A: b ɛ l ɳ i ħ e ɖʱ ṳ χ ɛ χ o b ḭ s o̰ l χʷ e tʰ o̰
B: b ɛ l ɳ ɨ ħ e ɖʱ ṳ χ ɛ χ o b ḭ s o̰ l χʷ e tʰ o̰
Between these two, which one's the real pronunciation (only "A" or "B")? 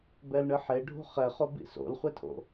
B